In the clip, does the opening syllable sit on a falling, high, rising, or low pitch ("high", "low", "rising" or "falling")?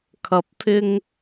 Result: rising